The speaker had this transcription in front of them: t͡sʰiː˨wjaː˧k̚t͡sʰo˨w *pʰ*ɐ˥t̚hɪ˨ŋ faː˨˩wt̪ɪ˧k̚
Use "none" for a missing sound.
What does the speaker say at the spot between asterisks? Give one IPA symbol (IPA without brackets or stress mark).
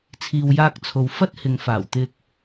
f